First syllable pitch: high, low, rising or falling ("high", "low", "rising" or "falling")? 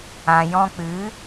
low